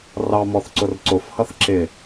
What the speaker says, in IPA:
r ɑ m ɔ θ ǀ ʊ r ǀ ʊ f h ʌ θ ǁ ɪ

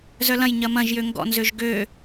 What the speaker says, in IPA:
z œ l ɐ̃ j ɲ ɐ m ɐ̃ ʒ j ø ŋ ɡ ɔ̰ n z ø ʒ ɡ ø

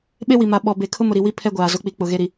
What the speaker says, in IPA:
ɓ e˦ w i˨ m a˨ ɓ ɔ˨ b e˨ kʰ ʊ˦ m ʊ˨ ɾ i˨ w i˦ pʰ ɛ˦ ɡʷ aː˨ z ʊ˨˦ k͡p i˨˦ k͡p ʊ˨ ɣ e˦ ɾ i˨

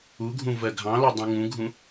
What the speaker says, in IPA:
u ɡʱ ũ v ɜ ɡʱ ɑ̃ l ɔ dˤ ũ ŋ ũ ɡʱ ũ

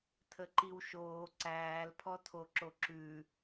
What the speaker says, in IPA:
tʰ ə ǃ i w ʃ oː ǀ æː l pʰ ɔ tʰ o ǁ o ǁ ʉ

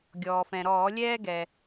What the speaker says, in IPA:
ɡʲ ɔː˩ f ɛ̃˩ ɾ ɔː˧˩˧ lʲ ɛː˥ ɡ ɛ˩

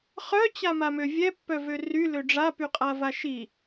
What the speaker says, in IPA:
χ œ t͡ɕ a m a m ø vʲ ɛ pː œ v ø r y l ø ɖ͡ʐ a p y qʼ a v a ʃ i

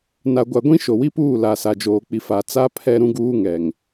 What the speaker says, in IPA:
n a˨ ɡʷ a˨ ɡʷ ĩ˦ ʃ o˨ w i˦ p uː˦˨ l a˨ s a˨ d͡ʒ oː˨ k͡p i˨ f a˨ t͡s a˦ pʰ ɛ˦ ɾ ũ˦ ɡ uː˦ ŋ ɛ˨ ŋ

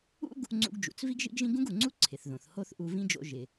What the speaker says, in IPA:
ṵ˥ ɡ | ŋ͡ǀ ṵ˧ ɡ d͡ʒ ṵ˩ t͡s v i˥ ɡ ʒ ḭ˥ ɡ ʒ ĩ˥ ɡ ũ˥ ɡ u˩ ŋ͡ǀ u˥ ǀʰ ɪ˩ θ ð õ˩ θ h o˥ θ ʔ u˧ v ĩ˥ d͡ʒ o̰˧ ʒ ɪ˩

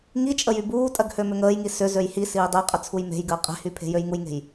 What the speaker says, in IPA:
ŋ i t͡ʃʼ ə j y b uː tʼ ɜ ɡ h ø m ʏ ŋ əː j ŋ i s ʏ z ø j h i s iː dˤ e qʼ ə t͡sʰ u j m e̤ j ɡ əː qʼ e̤ h y pʰ e̤ j ø j ŋ u j ŋ e̤ j

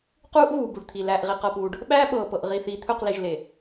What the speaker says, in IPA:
q uː˦ ʔ ɣ uː˨ b u˨ ɖ t̪ʰ i˨ l æː˨ ʔ ʁ i˨ q ɤ˨ p uː˨ ɖ | ɓ æː˦ ɓ ɤː˨ p ɤ˨ ʔ ʁ i˨ θ iː˨ t̪ʰ ɵ˦˨ q l i˨ ʒ l e˨

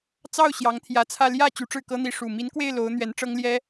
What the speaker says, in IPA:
t͡s ɑ˥˩ ʊ̯ ɕ j ɑ˧˥ ŋ t̪ʰ j ä˧˥ t͡sʰ ä˥˧ l j ä˥˩ t͡ɕ y˧˥ ʈ͡ʂ ɻ̩˥˩ k ɤ˥ n̪ i˧˥ ʂ u˨˩ m i˧˥ n k w e˥˩ ɪ̯ l o˧˥ ʊ̯ n̪ ɥ ɛ˧˥ n ʈ͡ʂ ɤ˥ ŋ l j ɛ˥

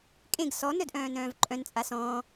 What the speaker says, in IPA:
kʼ ẽ ɡ s ɔ n œ d ʔ œ̃ː n œ̃ː v ǃʼ œ̃ n t͡sʼ a s ɔ̃ː

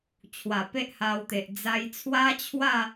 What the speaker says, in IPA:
t͡ɕʰ w a˨˩ p e˦ ʔ h a˧ w t̪ e˨ ʔ d͡z a˧ j t͡sʰ w a˦ t͡ɕʰ w a˥˧

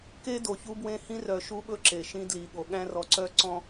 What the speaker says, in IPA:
k e˦ d o˨ ç u˦ b w ẽ˦ h ĩ˦ r œ˨ ʃ u˦ ɓ ɵ˦ ǁ e˨ ʃ ĩ˦ d l i˨ ɠ o˨ ɠ æ̃˦ r ɔ˨ ǀ œ˦ ǀ ɔ̃˦

